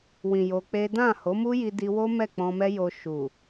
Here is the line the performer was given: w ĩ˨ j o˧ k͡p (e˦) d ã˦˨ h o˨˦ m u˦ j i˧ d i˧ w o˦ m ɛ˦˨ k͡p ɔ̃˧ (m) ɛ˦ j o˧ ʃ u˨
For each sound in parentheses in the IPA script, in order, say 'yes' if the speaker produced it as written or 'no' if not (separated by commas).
yes, yes